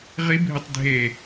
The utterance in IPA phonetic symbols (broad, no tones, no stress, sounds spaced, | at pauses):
ʁ i bʱ ɨ tˤ dʱ e